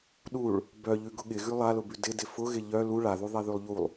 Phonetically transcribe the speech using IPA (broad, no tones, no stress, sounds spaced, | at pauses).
ɗ u ɭ | b œ ʎ ʉ ɡ ʊ ɠ ɪ ɣ ʉ lˠ a l ʊ b ʉ d ɪ d ɪ f ʊ ɣ ɪ ʎ œ l u ɭ a ð u ðˤ ɛ ð ʉ lˠ ʎ u lˠ